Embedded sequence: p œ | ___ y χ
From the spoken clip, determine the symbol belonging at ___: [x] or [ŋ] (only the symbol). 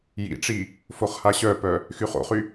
x